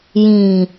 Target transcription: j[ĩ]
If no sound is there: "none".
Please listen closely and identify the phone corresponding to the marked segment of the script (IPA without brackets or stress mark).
ĩ